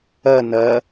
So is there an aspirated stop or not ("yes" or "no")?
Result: no